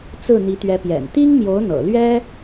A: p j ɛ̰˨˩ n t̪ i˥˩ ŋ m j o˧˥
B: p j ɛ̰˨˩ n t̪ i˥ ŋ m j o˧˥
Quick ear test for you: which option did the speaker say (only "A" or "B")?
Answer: B